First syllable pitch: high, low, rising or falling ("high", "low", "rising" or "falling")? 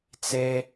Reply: high